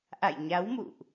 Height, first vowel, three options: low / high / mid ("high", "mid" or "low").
low